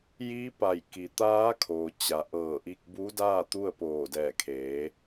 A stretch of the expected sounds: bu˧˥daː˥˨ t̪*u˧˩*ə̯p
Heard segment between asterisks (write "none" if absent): u˥˨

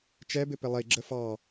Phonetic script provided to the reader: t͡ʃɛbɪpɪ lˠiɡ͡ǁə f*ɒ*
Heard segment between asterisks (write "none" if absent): ɑ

